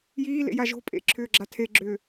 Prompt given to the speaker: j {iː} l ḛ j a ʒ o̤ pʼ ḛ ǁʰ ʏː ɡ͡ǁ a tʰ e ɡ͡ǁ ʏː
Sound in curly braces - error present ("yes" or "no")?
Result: no